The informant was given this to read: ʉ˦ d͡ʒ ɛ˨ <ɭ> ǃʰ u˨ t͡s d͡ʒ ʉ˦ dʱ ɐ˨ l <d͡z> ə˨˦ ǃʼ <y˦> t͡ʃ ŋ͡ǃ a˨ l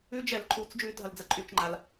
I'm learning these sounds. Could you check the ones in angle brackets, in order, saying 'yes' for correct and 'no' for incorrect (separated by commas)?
no, yes, no